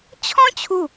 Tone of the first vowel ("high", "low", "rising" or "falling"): high